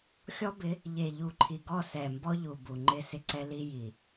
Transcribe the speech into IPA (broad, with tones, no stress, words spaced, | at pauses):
xʲɔ˦bɪ˨˦ | ʎe˨ʎu˨ǃʰi˨ɡɔ˦˨ sɛ˨mbɔ˦ʎu˨ bu˨ŋ͡ǃɪ˦ sɪ˦ǀɛ˦li˦ ji˨